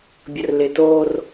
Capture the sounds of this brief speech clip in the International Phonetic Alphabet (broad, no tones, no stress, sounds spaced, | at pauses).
bʲ ə r l ɪ t o r